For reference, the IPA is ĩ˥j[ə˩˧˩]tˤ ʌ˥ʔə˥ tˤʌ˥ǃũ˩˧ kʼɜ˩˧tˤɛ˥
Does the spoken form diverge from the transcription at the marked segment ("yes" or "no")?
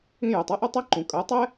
no